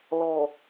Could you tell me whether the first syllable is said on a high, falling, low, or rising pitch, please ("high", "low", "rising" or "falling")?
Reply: low